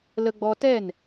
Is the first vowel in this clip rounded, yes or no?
no